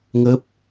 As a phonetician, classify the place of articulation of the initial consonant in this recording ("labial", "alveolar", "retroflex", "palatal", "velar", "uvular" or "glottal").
velar